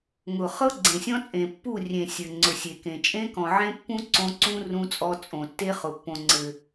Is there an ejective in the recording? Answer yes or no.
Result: yes